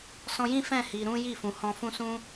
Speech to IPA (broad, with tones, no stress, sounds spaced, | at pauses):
s ɔ̃˧ j ĩ˦ f ɛ̃˦˨ h i˨ ɾ ũ˨˦ j i˦˨ f ũ˨ h ɔ̃˧ f ũ˦ s ũ˦